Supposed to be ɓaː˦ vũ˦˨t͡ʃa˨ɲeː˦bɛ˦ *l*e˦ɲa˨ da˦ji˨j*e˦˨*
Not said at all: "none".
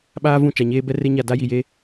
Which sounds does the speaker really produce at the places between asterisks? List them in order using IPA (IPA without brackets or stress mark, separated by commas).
r, e˦